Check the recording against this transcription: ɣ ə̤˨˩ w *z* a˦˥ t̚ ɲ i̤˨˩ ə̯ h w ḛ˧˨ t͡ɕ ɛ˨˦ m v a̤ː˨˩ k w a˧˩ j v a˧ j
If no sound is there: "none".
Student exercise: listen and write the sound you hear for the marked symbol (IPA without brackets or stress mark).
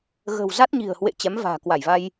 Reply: z